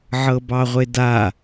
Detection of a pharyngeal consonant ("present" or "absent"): present